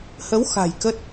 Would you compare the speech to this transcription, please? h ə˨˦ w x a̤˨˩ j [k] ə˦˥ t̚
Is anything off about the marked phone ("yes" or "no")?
no